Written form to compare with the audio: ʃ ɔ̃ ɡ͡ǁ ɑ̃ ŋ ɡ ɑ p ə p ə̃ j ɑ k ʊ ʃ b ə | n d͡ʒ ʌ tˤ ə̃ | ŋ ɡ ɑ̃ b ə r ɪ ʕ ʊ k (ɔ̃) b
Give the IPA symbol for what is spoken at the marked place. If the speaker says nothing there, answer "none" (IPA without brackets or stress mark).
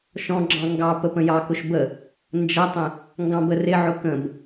ə̃